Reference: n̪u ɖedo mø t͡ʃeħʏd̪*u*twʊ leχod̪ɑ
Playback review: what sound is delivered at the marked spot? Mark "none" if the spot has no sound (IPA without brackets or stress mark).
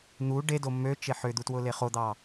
u